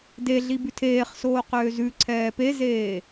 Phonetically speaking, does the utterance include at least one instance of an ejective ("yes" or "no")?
no